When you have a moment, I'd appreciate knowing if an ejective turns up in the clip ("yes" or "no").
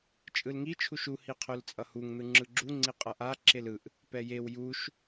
yes